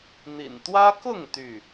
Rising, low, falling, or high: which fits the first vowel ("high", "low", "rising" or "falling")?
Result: low